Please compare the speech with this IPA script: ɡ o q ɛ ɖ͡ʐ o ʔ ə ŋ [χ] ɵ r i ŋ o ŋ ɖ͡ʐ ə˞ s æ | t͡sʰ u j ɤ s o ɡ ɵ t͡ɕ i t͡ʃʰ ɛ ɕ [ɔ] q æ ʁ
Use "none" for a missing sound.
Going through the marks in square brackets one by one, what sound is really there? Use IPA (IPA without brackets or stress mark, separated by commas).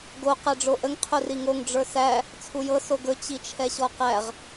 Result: qʰ, ɔ